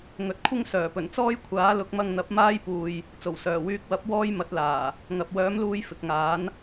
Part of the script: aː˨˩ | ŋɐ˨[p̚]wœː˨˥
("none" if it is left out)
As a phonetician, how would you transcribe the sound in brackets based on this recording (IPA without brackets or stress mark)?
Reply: p̚